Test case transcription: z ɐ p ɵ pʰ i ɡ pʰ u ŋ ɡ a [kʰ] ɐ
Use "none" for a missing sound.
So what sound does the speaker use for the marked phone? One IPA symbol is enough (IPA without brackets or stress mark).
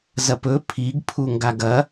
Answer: ɡ